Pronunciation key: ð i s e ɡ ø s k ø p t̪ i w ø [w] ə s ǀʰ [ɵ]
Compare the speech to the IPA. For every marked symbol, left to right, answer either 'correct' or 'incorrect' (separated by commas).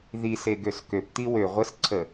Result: incorrect, incorrect